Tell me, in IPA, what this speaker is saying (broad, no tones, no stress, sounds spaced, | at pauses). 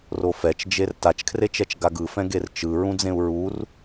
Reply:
r o f ɛ t͡ʃ d͡ʒ e r t a t͡ʃ kʰ r e t͡ʃ ɛ t͡ʃ ɡ a ɡ ɯ f ɛ̃ ɡ e r t͡ʃ ɯ ɹ ũ d͡z ẽ u̯ ɹ u r